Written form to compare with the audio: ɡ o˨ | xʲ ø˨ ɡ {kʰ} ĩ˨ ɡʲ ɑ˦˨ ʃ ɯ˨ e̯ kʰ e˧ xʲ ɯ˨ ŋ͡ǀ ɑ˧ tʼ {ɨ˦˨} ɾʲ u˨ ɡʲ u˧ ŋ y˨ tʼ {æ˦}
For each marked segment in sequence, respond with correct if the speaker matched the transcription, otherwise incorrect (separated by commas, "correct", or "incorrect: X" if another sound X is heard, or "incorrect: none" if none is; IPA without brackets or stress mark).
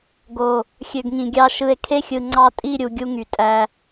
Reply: incorrect: ŋ, incorrect: i˦˨, incorrect: æ˧